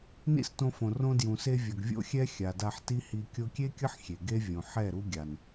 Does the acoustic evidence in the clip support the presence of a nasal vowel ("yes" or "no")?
yes